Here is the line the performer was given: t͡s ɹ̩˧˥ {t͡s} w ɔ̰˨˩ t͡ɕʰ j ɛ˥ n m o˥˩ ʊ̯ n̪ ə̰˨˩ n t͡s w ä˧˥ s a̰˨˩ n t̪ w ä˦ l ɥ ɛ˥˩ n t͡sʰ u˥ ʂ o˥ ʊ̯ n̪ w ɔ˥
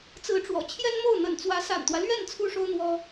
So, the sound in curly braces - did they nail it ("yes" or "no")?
no